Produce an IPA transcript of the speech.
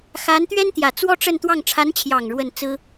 x a˧˥ n t̪ ɥ ɛ˥ n t̪ j ä˨˩ t͡s w ɔ˥ ʈ͡ʂ ə˥˧ n t̪ w ɑ˥˩ ŋ ʈ͡ʂʰ a˧˥ n t͡ɕʰ j ɑ˨˩ ŋ ɻ w ə˥˩ n t͡s ɹ̩˥

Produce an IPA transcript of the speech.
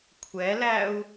kʷʰ ɛ l æ u̯

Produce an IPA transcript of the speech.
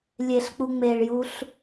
lʲ e ɬ k͡p u ŋ͡m e ɭ j u ɬ

